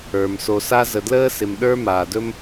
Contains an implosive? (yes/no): yes